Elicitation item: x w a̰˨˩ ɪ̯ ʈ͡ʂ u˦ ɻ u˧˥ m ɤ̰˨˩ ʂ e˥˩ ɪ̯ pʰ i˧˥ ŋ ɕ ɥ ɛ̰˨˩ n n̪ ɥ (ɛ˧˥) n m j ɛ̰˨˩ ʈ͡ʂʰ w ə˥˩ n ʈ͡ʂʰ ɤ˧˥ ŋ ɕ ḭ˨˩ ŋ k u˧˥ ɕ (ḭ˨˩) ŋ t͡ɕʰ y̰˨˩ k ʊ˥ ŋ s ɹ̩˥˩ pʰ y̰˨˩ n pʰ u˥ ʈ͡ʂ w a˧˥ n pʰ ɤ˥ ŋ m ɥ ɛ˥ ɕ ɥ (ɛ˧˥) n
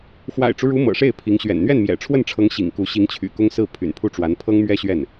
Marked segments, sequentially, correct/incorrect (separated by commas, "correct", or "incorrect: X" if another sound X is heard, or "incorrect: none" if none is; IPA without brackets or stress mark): incorrect: ɛ˥˩, incorrect: i˧˥, incorrect: ɛ˥˩